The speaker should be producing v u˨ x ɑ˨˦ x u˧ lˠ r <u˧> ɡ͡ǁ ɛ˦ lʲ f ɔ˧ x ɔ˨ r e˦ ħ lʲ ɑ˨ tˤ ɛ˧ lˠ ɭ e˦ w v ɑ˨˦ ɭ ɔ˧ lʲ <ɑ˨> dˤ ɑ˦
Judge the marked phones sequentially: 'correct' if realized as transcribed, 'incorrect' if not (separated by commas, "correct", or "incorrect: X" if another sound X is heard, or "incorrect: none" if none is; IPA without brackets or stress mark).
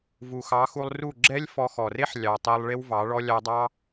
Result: incorrect: u˦˨, incorrect: ɑ˧